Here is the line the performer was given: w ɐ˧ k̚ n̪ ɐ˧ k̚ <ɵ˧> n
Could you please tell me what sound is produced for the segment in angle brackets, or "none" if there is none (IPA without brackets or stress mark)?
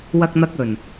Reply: ɵ˨˩